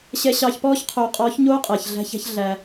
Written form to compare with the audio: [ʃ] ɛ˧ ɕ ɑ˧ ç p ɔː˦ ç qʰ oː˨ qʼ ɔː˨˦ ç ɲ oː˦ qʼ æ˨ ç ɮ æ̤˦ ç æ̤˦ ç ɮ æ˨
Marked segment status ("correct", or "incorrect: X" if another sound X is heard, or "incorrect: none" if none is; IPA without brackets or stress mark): incorrect: ɕ